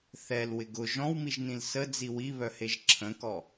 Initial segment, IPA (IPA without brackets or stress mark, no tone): θ